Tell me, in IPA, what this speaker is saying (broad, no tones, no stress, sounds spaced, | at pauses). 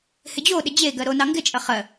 h ɪ d͡ʑ o ɗ ɪ d͡ʑ e ɡ ɜ ɾ o n ɑ ŋ ɡ ɪ t͡ʃʼ ɐ χ ɜ